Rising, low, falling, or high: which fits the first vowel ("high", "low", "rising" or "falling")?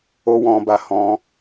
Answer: high